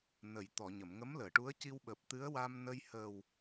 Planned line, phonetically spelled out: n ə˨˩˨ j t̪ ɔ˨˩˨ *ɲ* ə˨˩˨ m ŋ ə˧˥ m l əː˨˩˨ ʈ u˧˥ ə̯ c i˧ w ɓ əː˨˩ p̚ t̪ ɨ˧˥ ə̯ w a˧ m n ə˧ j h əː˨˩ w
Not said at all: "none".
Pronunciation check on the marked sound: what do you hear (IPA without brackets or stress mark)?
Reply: ɲ